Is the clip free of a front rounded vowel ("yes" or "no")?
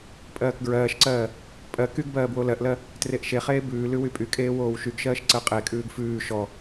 no